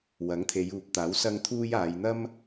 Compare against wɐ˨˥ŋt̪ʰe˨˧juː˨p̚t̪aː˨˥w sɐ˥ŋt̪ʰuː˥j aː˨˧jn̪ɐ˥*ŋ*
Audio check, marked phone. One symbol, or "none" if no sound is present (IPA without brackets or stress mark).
m